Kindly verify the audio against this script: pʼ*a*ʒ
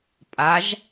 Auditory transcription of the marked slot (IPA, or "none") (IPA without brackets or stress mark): a